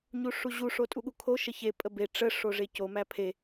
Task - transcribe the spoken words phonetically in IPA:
ɲuʂuʑu ʂotʼuɠukʰo ʃəçe pʼəbe ʈ͡ʂə ʂoʐeco mæpʰe

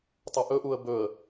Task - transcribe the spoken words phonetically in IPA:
tˤuʔɵʔuə̯ bɵə̯

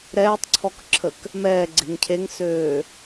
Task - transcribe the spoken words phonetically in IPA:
ɾɛːtˤǀʰɔkǁʰək | mɛːɡ͡ǀe̤ŋ cʰeŋsøː

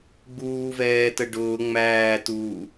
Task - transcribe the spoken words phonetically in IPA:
ɡ͡buːvɛːtə ɖʊː ŋ͡mæːtuː

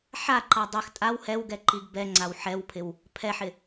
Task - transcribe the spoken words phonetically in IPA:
ħaǃa dˤɪx tʼaw hɛwɡɛǃiɡ bɛŋ͡ǀaw ħɛwpʰɪw | pʰɛħɪ

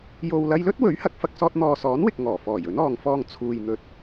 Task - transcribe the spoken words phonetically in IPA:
jo˨wlɐ˧jlɵ˥t̚ wɵ˨˥ɥhɐ˨˥k̚fɐ˨k̚sɔː˧t̚ n̪ɔː˨sɔː˨˥nwɪ˨k̚ ŋɔː˨˩fɔː˨˩j ɵ˨˥nɔː˨ŋfɔː˧ŋ t͡sʰuː˨jn̪ɵ˨t̚

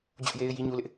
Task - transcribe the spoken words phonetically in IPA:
d͡ʑʊ˦ʔje˦ɪ̯ ji˦ɲu˦lɪ˦ʔ

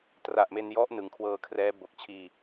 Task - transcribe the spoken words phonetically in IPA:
tra˨˩ʔme˧njɔ˦˥ʔ nɯ˩˦ŋkʰwɤː˧kʰrɛː˦˥ bo˨˩k̚t͡ɕʰiː˧

